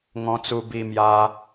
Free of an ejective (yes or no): yes